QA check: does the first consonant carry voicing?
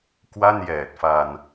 no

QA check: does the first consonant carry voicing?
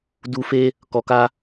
yes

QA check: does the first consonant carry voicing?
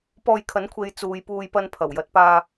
no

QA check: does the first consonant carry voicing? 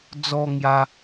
yes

